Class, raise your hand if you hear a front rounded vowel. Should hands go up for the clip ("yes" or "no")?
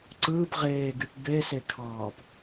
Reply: yes